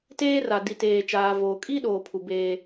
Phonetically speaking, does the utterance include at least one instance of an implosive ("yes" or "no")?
yes